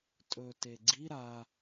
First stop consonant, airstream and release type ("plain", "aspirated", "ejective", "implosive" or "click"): ejective